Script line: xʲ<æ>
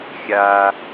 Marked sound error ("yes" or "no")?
yes